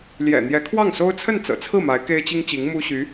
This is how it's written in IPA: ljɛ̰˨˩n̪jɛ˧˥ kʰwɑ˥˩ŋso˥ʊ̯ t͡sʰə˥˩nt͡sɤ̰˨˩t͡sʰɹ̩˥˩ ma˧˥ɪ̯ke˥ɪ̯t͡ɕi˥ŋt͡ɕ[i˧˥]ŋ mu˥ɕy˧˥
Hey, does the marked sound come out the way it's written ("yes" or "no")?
yes